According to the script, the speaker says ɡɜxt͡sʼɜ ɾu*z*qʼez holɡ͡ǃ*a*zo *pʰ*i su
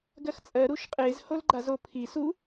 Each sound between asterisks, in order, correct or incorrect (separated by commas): incorrect, correct, correct